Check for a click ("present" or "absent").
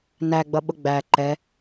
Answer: present